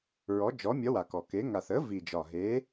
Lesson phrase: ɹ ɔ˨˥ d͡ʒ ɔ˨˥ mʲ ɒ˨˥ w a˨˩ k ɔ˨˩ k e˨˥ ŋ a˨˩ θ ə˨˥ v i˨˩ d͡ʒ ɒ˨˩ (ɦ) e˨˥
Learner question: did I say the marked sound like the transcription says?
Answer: yes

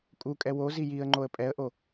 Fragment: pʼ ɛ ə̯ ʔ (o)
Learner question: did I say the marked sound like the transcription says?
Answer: yes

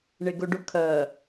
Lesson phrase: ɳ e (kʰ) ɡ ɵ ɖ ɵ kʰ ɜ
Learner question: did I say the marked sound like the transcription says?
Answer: no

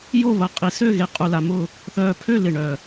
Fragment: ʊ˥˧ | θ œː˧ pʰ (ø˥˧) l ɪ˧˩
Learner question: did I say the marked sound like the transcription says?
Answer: yes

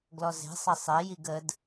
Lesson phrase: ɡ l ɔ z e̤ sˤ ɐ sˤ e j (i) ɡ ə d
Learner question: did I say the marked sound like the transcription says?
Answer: yes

